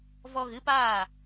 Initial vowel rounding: rounded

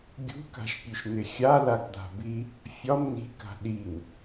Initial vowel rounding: rounded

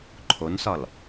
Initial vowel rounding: rounded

